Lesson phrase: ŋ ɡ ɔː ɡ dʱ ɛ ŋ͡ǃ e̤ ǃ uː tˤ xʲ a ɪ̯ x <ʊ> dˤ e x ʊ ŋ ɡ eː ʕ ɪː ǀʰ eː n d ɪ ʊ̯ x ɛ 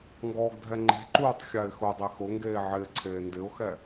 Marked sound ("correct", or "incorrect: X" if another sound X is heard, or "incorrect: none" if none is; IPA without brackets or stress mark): correct